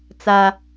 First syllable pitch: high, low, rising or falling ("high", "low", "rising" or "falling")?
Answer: high